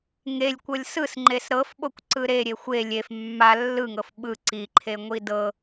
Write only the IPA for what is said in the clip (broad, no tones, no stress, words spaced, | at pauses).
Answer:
ŋelʲkʷɤlʲ sɯsŋ͡ǃes ɾɤfɓokʷǀɯ ɾeɾʲe xʷe lʲef mːa lːɯŋɤf ɓɯ ǀiǃʰeŋʷi dɤ